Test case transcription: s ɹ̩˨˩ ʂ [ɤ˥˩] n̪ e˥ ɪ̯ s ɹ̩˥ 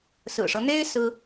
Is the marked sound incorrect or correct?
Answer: incorrect